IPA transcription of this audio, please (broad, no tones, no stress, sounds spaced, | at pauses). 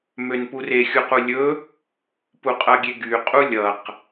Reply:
m ø n p u r e xʲ u q u lʲ ɵ | p u qʼ ʌ ɡʲ e ɡ y qʼ u lʲ ʌ q